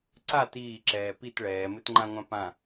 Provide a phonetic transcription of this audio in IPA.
ǀ a t iː ǁ ɛː p i t ɭ ɛː m ɨ t ŋ͡ǃ ã ŋʷ ã p ã

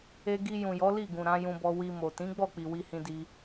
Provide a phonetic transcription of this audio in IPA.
e˧ ɡ i˧ j ũ˨ j ɔ˨˦ l i˦˨ ɡ ũ˨ ɾ ã˨˦ j ũ˧ b ɔ˧ w i˧ m o˨ t ĩ˨˦ ɡ͡b ɔ˦˨ k͡p i˨ w i˧ h ĩ˧ d i˧

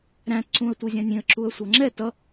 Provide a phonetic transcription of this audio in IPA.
ɾ æ̃ t ǀ ũ ə̯ tʷ i zʲ æ̃ nʲ ĩ ə̯ ǁ u ə̯ sʷ ʌ ŋ͡ǁ ɛ t ʌ

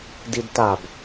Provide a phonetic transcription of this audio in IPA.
d i d t a b

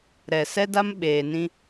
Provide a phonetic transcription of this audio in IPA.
ɾ ɛ˨ s ɛ˦ d a˦ m ɓ eː˨ n ĩ˦

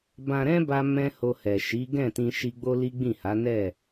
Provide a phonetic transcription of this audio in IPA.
b ã˧ ɾ ɛ̃˦ b a˧ m ɛ̃˦ h o˧ h ɛ˨ ʃ i˨˦ ɡ ɛ̃˦˨ t ĩ˧ ʃ i˧ ɡ͡b o˦ l i˦ ɡ͡b ĩ˦˨ h a˨˦ n ɛ˦˨

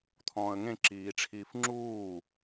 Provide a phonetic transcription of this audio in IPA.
t̪ʰ ɔ̃ː ə̯ ŋ ẽ ǁ iː ʈ͡ʂʰ iː f ŋ͡ǁ uː

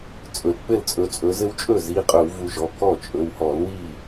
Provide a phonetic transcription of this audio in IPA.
t͡sʼ ɵ˩ l k͡p ɘ˥˩ l t͡sʼ ɵ˨˦ t͡sʼ ɵ˨˦ z ɘ˦ w t͡ʃʼ ɵ˥˩ z i˩˧˩ qʼ ɵ˧˩˧ w v u˦ ʒ ɔ˩˧˩ k ɔ˥˩ t͡ʃʼ ɵ˩˧˩ w h ɔ˧˩˧ l w i˥˩

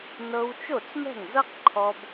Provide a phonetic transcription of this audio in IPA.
n ɤ˧ w t͡ʃ o˥˩ t͡s m ɛ̤˥˩ ŋ z ɤ˥ q ǃʰ ɔ˧ b

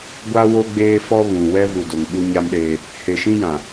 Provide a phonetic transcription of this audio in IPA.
ɡʷ a˦ w o˦ ɡ͡b eː˦ f ɔ˦ β ũ˨ w ɛ˦ v u˨ d o˨ ŋ ɓ u˦ ɲ a˦ m ɗ eː˦ | h e˨ ʃ ĩ˦ j ã˨

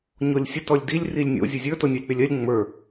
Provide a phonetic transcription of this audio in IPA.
ɲ o lʲ sʲ ə t ɔ lʲ d i lʲ r i lʲ nʲ o̰ zʲ ɵ zʲ ə˞ t o nʲ o lʲ k͡p e lʲ ɜ lʲ ŋ͡m ə˞

